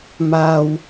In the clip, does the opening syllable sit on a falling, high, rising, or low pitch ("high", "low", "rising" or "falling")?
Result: high